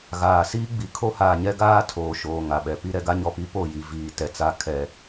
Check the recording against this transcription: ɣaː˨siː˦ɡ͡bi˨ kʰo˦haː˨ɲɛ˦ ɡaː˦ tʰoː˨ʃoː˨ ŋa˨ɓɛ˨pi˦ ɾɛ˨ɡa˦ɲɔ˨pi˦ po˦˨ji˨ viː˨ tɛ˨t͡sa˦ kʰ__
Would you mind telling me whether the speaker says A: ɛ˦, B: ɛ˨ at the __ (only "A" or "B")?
A